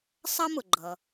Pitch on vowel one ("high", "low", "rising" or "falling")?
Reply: high